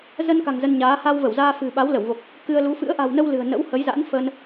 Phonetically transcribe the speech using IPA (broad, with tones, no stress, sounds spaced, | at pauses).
z ə˧ n k a̤˨˩ ŋ z ə˧ n ɲ aː˨˦ h a˧ w v ə˧˩ w z aː˧ f ɨ̤˨˩ ɓ a˨˦ w l ə˧˩ w v o˨˩ k̚ | k ɨ˧ ə̯ l u˨˦ f ɨ̰˧˥ ə̯ ʔ a̤˨˩ w n ə˧ w l ɨ̤˨˩ ə̯ n ə̰˧˥ w h ə˨˦ j z a̰˧˥ n f ə˧ n